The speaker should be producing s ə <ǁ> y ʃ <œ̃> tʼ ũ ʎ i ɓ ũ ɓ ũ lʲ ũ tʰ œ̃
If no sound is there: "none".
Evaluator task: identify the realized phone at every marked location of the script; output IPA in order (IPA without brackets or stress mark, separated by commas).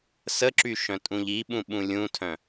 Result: ǁ, œ̃